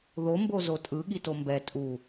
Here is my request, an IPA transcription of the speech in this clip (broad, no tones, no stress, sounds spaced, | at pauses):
ð o m b o z o tʼ ɯ ɠ i t o m b ɛ tʼ u